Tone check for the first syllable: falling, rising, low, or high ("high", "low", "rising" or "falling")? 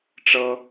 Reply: high